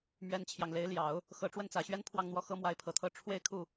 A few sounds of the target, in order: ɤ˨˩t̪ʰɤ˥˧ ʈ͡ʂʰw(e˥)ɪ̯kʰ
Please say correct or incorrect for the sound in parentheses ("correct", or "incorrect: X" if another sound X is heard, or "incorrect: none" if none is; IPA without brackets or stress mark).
incorrect: e˥˧